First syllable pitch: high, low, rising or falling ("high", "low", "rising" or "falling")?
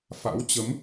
rising